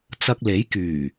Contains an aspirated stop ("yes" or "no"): no